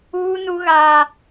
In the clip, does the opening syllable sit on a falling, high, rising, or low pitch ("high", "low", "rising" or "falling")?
high